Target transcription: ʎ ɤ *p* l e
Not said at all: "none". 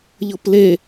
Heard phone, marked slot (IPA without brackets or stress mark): p